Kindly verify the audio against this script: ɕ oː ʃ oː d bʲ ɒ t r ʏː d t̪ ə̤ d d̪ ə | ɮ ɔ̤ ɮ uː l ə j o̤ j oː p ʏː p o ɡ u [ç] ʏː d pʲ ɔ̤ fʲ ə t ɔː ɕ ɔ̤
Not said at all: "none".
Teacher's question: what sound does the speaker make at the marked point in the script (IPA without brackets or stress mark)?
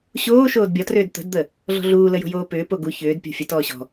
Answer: ç